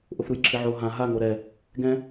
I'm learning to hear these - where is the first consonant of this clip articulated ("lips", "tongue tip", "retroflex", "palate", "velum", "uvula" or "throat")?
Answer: throat